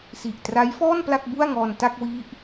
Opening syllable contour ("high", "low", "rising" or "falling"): low